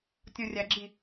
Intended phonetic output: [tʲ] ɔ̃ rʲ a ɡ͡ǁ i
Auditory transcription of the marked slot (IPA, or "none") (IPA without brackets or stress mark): tʲ